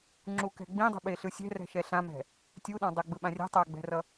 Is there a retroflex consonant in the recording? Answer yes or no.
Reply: no